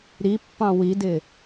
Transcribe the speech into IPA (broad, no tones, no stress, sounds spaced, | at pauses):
ɾ i pː ɑ̃ w i d ɪ